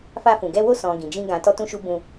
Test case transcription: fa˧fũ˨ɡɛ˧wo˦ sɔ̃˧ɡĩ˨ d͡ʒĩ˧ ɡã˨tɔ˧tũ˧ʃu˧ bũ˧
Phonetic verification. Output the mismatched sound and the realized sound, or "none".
none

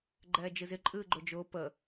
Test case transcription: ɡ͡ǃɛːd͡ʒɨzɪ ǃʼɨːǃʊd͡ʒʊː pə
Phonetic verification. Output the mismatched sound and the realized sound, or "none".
ǃ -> ɡ͡ǃ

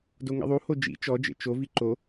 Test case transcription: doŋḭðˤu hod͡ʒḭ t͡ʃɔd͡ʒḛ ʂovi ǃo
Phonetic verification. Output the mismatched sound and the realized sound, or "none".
ʂ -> t͡ʃ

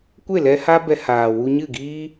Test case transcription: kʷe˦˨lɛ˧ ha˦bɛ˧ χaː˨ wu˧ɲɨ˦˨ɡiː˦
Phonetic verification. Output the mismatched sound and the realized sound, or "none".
χ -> h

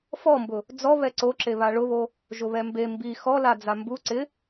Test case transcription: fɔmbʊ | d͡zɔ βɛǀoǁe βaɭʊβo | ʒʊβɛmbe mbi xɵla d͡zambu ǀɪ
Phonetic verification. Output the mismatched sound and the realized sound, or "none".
ɵ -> ɔ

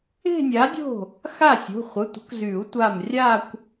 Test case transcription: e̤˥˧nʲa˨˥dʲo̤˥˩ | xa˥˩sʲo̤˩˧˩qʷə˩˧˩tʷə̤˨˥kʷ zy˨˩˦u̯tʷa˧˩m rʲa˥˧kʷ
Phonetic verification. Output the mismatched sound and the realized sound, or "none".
qʷ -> χʷ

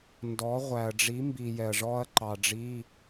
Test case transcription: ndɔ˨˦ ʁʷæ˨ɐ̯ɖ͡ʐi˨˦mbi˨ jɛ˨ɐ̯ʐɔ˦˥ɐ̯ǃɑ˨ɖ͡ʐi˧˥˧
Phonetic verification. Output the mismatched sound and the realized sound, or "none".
none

